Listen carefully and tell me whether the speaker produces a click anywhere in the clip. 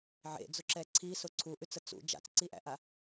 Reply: yes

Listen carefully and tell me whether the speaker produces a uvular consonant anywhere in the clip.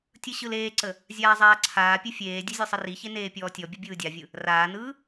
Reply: no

